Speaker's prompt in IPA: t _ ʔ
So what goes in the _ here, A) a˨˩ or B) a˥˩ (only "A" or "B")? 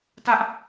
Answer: B